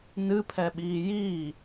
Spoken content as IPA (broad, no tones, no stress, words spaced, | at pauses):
nɨpʰɛɓiː jiː